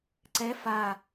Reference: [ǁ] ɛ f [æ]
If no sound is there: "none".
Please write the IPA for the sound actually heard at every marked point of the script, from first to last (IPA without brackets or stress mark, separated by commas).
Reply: ǀ, a